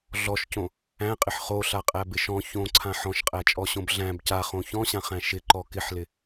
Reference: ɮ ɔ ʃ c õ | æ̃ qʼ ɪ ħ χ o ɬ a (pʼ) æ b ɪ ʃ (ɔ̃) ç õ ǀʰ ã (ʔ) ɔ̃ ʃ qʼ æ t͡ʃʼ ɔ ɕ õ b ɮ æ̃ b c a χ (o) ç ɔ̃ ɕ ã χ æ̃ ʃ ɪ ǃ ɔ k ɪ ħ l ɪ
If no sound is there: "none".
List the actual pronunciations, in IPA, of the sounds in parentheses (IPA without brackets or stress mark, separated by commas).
qʼ, ɔ̃, ħ, õ